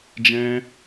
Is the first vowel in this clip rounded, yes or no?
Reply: no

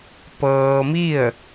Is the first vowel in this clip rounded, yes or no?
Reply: no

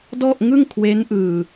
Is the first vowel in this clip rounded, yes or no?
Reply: yes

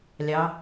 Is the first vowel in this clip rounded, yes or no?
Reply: no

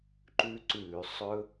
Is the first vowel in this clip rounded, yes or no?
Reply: yes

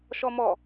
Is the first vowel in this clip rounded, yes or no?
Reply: yes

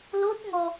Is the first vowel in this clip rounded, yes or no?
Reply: yes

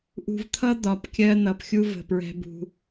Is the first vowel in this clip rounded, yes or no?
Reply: yes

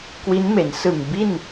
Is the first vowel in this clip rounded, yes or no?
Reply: no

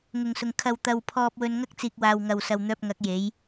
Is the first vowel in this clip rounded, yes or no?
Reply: yes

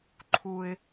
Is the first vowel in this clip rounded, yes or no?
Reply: yes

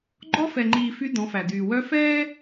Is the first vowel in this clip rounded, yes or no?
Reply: yes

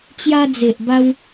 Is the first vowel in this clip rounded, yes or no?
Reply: no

